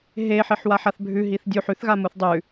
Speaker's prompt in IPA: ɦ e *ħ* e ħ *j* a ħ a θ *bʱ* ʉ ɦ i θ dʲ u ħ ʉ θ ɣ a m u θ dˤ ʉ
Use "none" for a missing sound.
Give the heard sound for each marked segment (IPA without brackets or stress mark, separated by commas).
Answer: ħ, w, bʱ